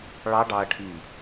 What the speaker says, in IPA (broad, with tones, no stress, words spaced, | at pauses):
ɭɑ˦˥ɖɑ˧ɐ̯ʈʰi˧˩